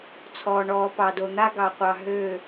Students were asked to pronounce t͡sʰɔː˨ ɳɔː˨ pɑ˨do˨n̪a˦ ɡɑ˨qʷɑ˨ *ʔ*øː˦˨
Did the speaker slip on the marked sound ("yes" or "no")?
yes